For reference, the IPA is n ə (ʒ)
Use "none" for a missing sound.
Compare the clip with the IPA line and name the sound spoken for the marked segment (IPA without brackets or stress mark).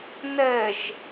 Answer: ʒ